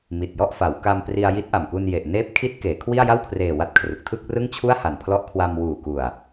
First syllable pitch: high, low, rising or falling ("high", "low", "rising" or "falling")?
low